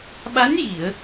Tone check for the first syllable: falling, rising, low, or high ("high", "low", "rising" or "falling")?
rising